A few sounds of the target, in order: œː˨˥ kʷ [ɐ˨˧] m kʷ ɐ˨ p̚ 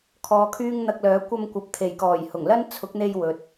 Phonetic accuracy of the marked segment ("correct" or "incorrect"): incorrect